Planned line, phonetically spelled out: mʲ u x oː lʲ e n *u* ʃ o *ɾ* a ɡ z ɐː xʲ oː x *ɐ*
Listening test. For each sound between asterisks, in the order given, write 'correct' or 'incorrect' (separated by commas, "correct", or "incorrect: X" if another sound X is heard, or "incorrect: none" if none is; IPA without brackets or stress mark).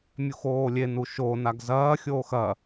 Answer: correct, incorrect: n, correct